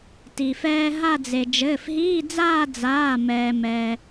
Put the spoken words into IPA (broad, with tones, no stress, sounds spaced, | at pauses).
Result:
t i˩ f ɛː˧ ɦ a˥˧ d͡z e˩ d͡ʒ ɘː˩˧˩ f ɦ iː˧˥˧ d͡z aː˥˧ d͡z aː˩˧˩ m ɛː˩ m ɛ˩